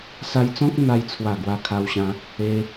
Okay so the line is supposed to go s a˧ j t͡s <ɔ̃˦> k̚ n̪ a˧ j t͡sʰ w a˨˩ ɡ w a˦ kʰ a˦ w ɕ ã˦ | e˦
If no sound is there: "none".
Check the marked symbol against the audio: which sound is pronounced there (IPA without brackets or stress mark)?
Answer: ɔ̃˦